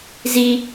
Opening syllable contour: high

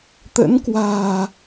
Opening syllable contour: rising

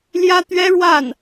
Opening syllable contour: high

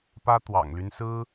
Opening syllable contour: high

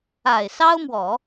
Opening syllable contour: low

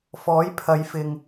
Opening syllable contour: rising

